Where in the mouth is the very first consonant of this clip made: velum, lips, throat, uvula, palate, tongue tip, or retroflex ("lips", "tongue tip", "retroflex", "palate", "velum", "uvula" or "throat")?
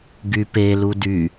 velum